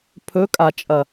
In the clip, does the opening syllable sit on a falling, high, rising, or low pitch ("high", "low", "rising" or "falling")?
rising